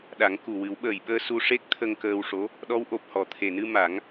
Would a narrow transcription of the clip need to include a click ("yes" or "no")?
no